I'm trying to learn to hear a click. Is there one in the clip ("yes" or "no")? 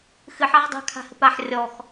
no